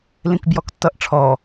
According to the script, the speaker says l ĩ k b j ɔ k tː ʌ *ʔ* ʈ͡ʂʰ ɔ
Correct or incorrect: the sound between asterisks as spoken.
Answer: correct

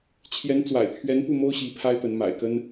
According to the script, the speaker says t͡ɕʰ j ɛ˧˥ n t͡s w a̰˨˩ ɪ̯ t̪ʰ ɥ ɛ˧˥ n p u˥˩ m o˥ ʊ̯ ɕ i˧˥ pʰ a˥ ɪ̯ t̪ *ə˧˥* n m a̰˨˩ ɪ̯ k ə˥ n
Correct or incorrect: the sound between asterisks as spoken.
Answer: correct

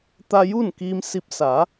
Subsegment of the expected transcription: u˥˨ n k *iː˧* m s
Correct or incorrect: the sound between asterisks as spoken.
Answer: correct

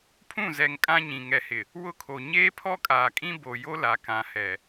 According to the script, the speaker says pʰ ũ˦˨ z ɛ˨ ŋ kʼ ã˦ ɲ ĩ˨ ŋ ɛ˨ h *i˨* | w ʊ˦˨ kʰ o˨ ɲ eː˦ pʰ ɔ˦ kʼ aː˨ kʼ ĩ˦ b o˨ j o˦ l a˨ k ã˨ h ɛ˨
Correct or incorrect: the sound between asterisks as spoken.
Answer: incorrect: ɪ˨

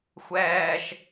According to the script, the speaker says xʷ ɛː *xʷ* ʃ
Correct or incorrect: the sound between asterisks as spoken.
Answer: incorrect: none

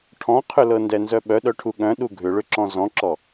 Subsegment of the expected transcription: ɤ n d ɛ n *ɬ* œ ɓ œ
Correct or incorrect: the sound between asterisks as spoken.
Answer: incorrect: z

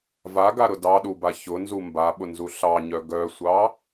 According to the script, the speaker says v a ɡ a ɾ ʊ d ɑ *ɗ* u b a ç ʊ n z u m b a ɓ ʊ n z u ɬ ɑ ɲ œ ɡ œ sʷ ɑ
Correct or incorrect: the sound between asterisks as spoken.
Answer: correct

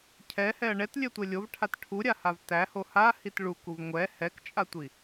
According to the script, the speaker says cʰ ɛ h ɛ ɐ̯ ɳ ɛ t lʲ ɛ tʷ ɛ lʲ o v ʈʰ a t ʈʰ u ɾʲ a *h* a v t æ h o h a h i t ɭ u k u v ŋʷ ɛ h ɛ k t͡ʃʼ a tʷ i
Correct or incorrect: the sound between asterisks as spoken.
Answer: correct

